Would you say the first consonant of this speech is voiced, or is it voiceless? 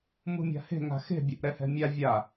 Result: voiced